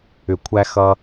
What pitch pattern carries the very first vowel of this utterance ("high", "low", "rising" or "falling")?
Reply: low